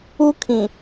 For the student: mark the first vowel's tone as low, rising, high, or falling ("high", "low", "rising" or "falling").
high